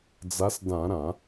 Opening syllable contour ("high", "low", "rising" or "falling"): rising